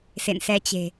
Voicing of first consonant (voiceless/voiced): voiceless